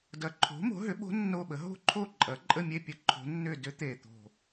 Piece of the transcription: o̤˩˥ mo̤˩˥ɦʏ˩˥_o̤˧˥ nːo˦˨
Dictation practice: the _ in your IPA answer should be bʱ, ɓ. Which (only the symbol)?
ɓ